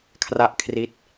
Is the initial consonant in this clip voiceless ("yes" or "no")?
yes